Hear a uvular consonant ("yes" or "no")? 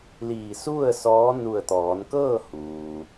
no